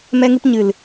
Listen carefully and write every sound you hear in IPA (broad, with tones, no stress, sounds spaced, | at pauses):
m ɛ˧ ŋ ɨ˧ p ɲ ɨ˨ l